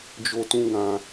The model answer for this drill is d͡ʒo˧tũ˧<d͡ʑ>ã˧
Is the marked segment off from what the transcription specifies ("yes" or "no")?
yes